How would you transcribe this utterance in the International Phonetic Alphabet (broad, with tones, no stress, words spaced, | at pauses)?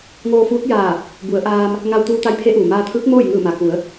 ŋoː˧fuː˧˥t̚jaː˧˩ | bu˩˧ə̯ʔaː˧m | ŋa˧wt̪uː˧t̪a˧˥jpʰe˧˥ ʔuː˩maː˧t̪ʰɯː˧˥k̚ moː˥˨jŋɯː˧˩ma˩ku˩˧ə̯